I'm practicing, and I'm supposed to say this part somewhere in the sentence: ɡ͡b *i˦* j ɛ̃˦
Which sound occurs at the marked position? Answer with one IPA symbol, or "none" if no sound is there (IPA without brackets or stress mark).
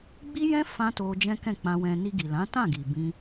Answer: i˦